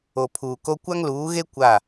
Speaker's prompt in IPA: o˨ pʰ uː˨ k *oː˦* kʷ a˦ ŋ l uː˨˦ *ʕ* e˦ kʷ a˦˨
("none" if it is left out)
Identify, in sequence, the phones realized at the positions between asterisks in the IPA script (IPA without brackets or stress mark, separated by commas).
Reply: o˦, ɣ